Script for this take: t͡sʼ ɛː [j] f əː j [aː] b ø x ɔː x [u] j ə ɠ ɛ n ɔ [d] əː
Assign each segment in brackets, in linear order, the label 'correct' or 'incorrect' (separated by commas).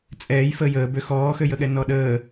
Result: correct, incorrect, incorrect, incorrect